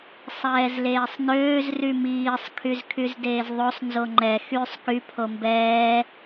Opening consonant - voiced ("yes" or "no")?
no